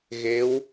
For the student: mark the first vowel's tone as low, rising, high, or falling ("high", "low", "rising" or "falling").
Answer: rising